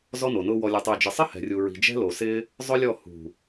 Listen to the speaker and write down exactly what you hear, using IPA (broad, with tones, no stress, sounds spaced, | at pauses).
z ɔ˦ n o˨ n ʊː˦ w ɔ˧ lʲ o˧ tˤ eː˧ d͡ʒ ɪ˨ sˤ ɪ˦ h ɛ̤˨ rʲ u˨ ɹ i̤˨ d͡ʒ ɛ̤˦ l o˨ s ɪ˦ | zˤ ʊ˦ lʲ ɔ˦˨ h ṳ˨